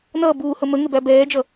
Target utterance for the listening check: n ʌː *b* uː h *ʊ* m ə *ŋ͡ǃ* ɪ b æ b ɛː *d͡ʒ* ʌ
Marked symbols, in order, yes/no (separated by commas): yes, yes, no, yes